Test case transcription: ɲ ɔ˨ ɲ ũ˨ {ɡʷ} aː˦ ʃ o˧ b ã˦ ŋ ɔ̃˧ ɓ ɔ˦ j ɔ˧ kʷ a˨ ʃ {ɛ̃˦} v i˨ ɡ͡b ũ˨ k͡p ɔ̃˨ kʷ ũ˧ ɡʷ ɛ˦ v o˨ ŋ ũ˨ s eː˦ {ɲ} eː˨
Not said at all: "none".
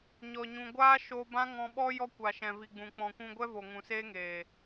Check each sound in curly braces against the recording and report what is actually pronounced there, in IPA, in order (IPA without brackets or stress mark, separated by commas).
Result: ɡʷ, ɛ̃˨, ŋ